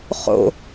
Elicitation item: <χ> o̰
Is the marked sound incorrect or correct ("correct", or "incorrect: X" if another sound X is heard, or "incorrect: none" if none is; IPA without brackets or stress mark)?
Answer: correct